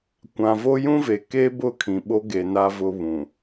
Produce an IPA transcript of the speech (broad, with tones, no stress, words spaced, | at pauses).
kʷã˨vo˦ jũ˦ve˨ke˦bʊ˦˨ kʰĩ˨ɓo˦ɡe˨ na˦vʊ˦ βũ˨